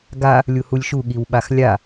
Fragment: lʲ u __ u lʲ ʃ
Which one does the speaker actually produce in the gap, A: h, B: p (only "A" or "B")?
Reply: A